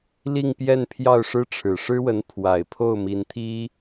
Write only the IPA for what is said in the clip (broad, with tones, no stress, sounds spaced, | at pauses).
l i˥˧ ŋ p j ɛ˥˧ n pʰ j ɑ˥˩ ʊ̯ ʂ ɻ̩˥ ʈ͡ʂʰ ɻ̩˨˩ ʂ ɻ̩˥ w ə˧˥ n pʰ w a˨˩ ɪ̯ pʰ o˥˩ ʊ̯ m i˧˥ n t̪ʰ i˥